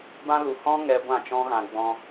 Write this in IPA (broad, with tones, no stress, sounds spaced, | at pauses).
b ã˧ l u˨ h ɔ̃˦ ŋ ɛ˧ ɡʷ ã˦˨ t͡ʃ ɔ̃˦ ɣ ã˧ ɡ͡b ɔ̃˧